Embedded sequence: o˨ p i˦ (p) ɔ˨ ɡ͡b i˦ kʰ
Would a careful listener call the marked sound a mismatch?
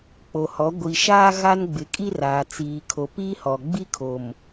yes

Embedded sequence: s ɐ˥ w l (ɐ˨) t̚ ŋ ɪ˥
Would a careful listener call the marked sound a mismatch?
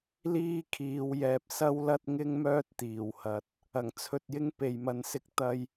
yes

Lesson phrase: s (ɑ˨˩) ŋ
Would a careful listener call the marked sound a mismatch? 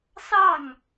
yes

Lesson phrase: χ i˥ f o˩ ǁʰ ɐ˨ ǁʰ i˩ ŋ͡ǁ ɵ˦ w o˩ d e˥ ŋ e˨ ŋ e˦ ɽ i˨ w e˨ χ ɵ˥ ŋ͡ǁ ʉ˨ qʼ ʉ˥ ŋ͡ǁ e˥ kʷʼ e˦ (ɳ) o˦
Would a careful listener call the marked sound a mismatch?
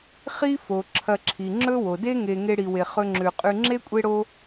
yes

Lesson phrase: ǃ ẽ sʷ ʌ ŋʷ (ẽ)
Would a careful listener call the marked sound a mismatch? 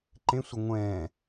yes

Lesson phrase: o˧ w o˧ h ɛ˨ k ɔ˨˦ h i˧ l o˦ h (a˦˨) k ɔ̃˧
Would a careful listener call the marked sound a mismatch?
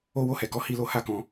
no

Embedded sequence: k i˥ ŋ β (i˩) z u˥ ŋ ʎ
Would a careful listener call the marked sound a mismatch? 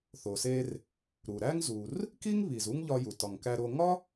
no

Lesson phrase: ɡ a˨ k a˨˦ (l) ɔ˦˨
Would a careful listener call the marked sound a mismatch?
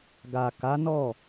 yes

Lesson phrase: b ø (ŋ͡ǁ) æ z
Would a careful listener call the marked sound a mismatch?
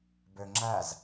no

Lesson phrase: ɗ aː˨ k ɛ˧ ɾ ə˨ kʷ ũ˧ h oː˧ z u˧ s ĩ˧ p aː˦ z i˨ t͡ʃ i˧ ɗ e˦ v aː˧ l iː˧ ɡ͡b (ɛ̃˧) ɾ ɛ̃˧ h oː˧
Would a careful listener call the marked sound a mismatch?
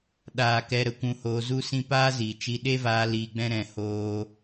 yes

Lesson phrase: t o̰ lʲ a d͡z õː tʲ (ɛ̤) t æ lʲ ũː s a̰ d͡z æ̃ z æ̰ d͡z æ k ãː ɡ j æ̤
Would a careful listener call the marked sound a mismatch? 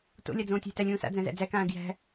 yes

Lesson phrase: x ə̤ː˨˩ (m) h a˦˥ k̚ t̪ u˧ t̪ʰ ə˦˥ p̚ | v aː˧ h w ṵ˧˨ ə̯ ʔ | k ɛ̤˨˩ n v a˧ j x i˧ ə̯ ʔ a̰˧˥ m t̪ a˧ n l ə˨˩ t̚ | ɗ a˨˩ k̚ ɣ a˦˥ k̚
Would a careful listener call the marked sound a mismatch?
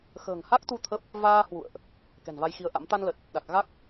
yes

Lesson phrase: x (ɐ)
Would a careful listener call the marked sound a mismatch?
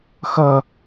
no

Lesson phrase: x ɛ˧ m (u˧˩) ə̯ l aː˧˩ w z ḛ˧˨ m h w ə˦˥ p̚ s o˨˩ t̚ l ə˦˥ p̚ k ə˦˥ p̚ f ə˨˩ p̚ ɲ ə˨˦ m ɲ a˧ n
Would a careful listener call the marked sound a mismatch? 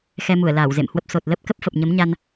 no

